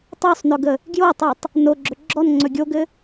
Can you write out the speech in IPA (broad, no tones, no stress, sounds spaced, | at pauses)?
tˤ o sˤ n ɵ ɡ ə | ɡ j o tˤ i tˤ | n o ɡ͡ǁ ɵ ɡ͡ǁ ɔ n ŋ͡ǀ ɵ ɡʲ o ɡ ɘ